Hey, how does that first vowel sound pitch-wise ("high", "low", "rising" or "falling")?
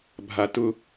low